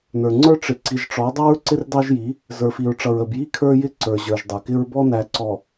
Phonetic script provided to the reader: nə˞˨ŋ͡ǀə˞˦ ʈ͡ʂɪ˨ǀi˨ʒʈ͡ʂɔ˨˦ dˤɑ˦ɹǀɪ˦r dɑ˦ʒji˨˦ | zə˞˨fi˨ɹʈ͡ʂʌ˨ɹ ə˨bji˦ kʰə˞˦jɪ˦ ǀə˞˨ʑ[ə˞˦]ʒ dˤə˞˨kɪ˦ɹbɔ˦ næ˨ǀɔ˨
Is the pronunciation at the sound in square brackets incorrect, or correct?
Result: incorrect